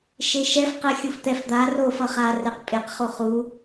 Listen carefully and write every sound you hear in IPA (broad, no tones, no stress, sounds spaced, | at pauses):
ʃ e ʃ ɛ f q ɛ xʲ u f t̪ ɛ f d̪ a r o f ʌ χ a r ɛ q pʼ e q χ o χ u